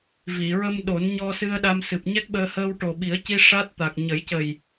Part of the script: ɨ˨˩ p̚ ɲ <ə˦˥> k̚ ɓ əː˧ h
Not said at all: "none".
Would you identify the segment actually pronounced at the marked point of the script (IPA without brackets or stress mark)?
ɛ˦˥